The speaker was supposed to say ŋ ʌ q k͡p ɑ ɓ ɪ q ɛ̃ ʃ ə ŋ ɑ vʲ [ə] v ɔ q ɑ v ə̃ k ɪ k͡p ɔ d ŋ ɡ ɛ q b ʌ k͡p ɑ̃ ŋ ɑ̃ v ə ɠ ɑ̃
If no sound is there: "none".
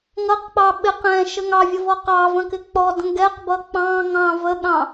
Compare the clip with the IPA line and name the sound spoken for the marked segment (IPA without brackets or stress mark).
ʌ